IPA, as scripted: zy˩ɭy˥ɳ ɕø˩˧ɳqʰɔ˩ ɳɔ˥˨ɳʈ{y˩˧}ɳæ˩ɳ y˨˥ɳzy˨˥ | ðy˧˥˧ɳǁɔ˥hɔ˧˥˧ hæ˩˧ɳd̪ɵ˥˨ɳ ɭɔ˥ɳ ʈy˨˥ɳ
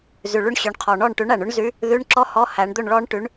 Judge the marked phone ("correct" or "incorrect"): incorrect